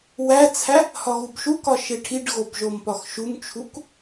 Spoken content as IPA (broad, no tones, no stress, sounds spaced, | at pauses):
w æ t͡sʰ æ | h ɒ ɣ u b ʃ u k ɒ ʃ e ʈʰ i ɖ ɣ o b ʒ o m p ɒ x ʃ u m t͡ʃʰ u k